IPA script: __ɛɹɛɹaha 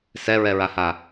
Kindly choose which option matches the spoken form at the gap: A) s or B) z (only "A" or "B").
A